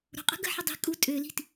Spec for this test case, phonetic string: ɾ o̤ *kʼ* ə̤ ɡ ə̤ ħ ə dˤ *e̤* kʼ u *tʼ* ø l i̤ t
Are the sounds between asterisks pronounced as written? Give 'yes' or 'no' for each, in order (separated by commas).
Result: no, no, yes